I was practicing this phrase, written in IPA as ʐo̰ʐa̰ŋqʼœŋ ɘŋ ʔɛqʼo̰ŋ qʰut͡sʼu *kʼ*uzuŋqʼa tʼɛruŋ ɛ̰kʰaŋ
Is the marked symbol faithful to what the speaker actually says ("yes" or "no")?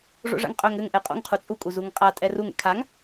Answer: yes